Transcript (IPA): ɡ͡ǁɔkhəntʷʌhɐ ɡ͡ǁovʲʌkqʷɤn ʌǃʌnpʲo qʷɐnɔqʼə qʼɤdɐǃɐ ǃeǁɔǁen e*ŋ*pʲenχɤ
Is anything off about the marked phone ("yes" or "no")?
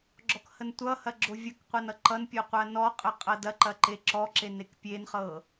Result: yes